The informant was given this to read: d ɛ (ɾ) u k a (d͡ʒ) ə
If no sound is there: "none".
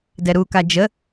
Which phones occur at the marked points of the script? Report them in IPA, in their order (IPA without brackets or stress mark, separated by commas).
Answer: ɾ, d͡ʒ